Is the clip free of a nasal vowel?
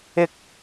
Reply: yes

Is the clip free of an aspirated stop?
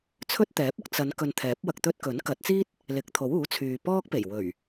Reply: no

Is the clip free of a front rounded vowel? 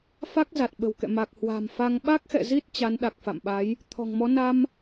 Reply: yes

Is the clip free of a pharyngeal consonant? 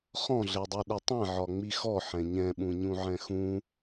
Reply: no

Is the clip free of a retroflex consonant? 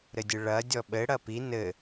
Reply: no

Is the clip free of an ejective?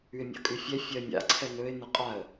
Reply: no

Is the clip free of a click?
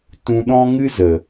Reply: yes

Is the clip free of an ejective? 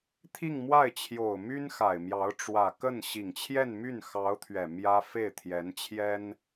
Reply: yes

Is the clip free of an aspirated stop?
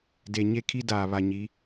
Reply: no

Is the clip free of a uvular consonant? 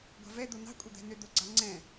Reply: yes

